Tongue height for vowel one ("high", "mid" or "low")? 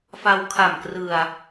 low